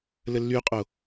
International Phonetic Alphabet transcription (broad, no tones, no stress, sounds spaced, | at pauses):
l ə lː y qʼ o